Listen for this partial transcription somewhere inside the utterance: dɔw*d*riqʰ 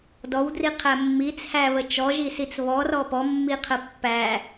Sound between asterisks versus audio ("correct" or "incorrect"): correct